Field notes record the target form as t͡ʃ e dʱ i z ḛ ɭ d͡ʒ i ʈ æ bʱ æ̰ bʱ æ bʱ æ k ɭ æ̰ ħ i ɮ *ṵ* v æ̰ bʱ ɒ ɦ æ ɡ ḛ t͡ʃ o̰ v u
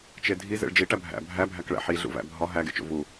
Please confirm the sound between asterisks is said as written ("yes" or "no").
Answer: yes